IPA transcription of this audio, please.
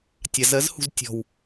tʲ a z ɜ z h ṳ z tʲ ɔ̤ w

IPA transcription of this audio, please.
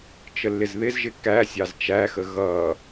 t͡ʃ ə lː ɪ z ð ɪ z ʒ ɪ k æ sʲ ɑ z t͡ʃ æ x ə ɣ ʌ

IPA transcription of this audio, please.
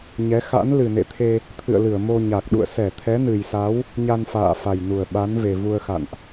ɲ ɛ˨˦ x a̰˧˥ n l ɨ˨˩ n ḛ˧˨ t̪ʰ e˧ | t̪ʰ ɨ̰˧˨ ə̯ l ɨ˧˩ ə̯ m o˧ ɲ a˨˩ k̚ ɗ ṵ˧˨ ə̯ s ɛ˧˩ t̪ʰ ɛ˨˦ n ɨ˨˩ j s a˨˦ w | ɲ a˧ n f a̰ː˧˨ f a˨˩ j n u˨˩ ə̯ ɓ a˨˦ n v e˨˩ v u˧ ə̯ x a̰˧˨ n ʔ

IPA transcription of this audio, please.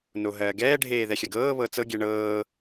n o ɦ ɜː ɡ ɛː ɖʱ eː ð ɛ xʲ ɜ ɡ ɤː β ɤ t͡s ɤ ɡʲ ɛ ɳ ɤː

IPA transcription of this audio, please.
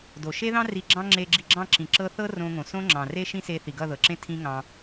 d o˨ ʃ e˦ ð ɑ̃˦ r i˧ ɡ͡ǁ ɑ̃˦ ŋ͡ǁ e˧ ɡ͡ǁ i˧ ɡ͡ǁ ɑ̃˦˨ ǁ ĩ˨ ǁ ɤ˧ θ ɤ˦ r õ˧ ŋ õ˨ s õ˦ ŋ͡ǁ ɑ̃˨ r e˦ ʃ ĩ˦ s e˧ θ i˨ ɡ ʌ˦˨ ð ɤ˨ ǁ ẽ˦ tʰ ĩ˦ ŋ ɑ̃˧

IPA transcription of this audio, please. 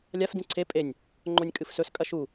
lʲ a f d ĩ ǀʰ e pʼ e nʲ | ŋ͡ǃ o nʲ kʼ ɨ f s ɵ s kʼ ɐ ʃ u

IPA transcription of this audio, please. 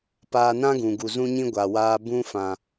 p aː˧ n ã˦ ɡ ũ˨ ɡ u˨ z ũ˧ ɲ ĩ˧ ɡʷ a˨ w aː˧ b ũ˧ f ã˨

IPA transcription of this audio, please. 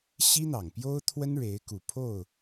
ɕ i˥ n̪ ɑ˨˩ ŋ p j o˥ ʊ̯ t̪ʰ w ə˥ n ɻ e˧˥ ɪ̯ k u˨˩ pʰ o˥˩ ʊ̯

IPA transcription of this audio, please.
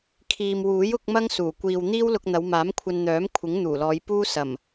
kʰ iː˨ m w uː˨˥ j ʊ˨˥ k̚ m ɐ˥ ŋ s uː˨˩ kʷ iː˨ w n̪ iː˥ w l ʊ˧ k̚ n̪ ɐ˨˧ w m aː˨˥ m kʷʰ ɐ˧ n n̪ œː˨˥ m kʷʰ ɪ˨˥ ŋ n̪ uː˨˩ l ɔː˨˧ j p uː˥ s ɐ˨˩ m

